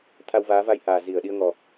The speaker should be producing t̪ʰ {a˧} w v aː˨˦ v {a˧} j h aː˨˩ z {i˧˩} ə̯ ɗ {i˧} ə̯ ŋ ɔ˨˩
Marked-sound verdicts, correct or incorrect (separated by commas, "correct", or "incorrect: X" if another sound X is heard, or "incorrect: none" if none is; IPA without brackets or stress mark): correct, correct, correct, correct